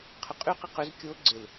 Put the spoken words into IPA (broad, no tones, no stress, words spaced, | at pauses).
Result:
qʰʏqʼyqɪ qøz kʲo ɡ͡ǀɪl